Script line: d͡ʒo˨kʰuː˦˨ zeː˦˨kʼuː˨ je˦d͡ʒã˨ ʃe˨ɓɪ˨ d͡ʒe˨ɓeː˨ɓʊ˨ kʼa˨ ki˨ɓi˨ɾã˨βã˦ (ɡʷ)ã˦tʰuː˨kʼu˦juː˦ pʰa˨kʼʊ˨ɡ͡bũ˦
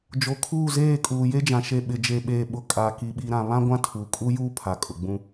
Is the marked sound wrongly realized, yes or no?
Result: no